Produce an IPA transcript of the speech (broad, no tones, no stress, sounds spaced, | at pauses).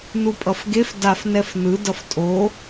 n u pʼ ʌ f ɡ e f d a f n ɛ f n ɯ d ʌ f tʼ o